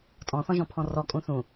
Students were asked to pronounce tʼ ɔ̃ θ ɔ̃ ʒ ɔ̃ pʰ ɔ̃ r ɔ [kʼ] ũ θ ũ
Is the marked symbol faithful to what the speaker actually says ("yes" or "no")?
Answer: yes